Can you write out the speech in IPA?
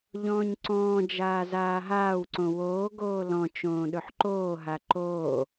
ʎ ɔ̃ː ɲ ǀ ɔ̃ː d͡ʒ aː z aː ɦ aː w ǀ õ w oː ɡ oː l ɔ̃ t͡ʃ õː ɗ ɵ ħ ǃ oː ɦ a ǃ oː

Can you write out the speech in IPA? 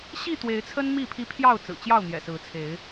ɕ i˥˨ t̪ w e˨˦ ɪ̯ t͡sʰ ə˦ n m i˥˨ pʰ i˦ pʰ j ɑ˥˨ ʊ̯ t͡s ɹ̩˨˩ t͡ɕ j ɑ˥˨ ʊ̯ n̪ j ɛ̰˨˩ s ɹ̩˨˦ t͡sʰ e˨˦ ɪ̯

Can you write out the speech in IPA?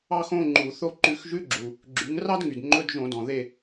ɑ˥ x õ˧˥˧ ŋ͡ǃ u˧˩˧ θ o˥ ǃ ʉ˧˩˧ x ʒ ʉ˧˥˧ ɡ͡ǁ u˩ | ɡ͡ǁ y˩˥ ŋ r ɑ˥ d ŋ y˩ d ŋ͡ǃ ɵ˧˥˧ d ʒ õ˧˩˧ d ɔ̃˩ ð e˦˨

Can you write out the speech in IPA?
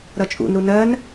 ɾ ʌ t͡ʃʼ ṵ n ɾ u n ɜ n

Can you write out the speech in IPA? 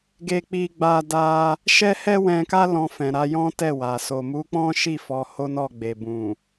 ɡ e˧ k͡p i˧ ɡ͡b a˧ d a˧ | ʃ ɛ˦ h ɛ˦ w ɛ̃˧ k a˦ l ɔ̃˧ f ɛ̃˨ ɾ a˨˦ j ɔ̃˦ t ɛ˦˨ w a˨ s o˨ m u˨˦ k͡p ɔ̃˦ ʃ i˦˨ f ɔ˨˦ h o˦ n ɔ˦˨ ɡ͡b e˨ b ũ˨

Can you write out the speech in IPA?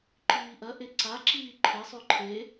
ǃ iː ʔ ɐ ʔ e ǀ a ǁ iː ǃʰ e sˤ ʉ ǃʰ e

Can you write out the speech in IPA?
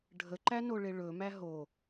ɖʱ ə ǃ æ n o ɭ e ɭ ɵ m æ ɦ o

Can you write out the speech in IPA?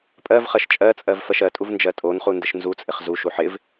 pʼ ɜ v χ ɜ ʃ t͡ʃʼ ɜ t͡sʼ ɜ v f ɜ ʃ ɜ tʼ u v n d͡ʒ ɜ tʼ o n χ u n d ɪ ʃ n z u t͡sʼ ɪ χ z u ʃ u ħ ɪ v

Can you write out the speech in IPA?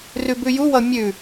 r ʉ b ʉ j u w ʌ mʲ ʉ

